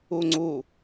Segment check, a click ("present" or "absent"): present